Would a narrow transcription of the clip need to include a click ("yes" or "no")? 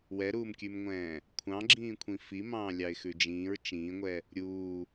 yes